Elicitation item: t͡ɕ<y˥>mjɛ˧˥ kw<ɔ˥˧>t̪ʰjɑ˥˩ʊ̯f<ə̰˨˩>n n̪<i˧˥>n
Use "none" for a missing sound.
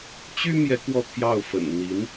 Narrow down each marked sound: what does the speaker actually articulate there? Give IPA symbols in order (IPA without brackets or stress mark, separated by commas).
y˥, ɔ˥˧, ə̰˨˩, i˧˥